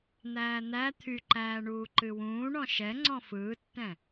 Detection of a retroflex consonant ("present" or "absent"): present